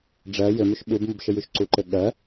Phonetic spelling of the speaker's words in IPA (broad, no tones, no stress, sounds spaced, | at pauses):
ɖ͡ʐ ɜ j ɘ m y ʃ ɓ u b m u b ʃ ɘ j y ʃ ǀ u ǃ ɘ ɠ ɜ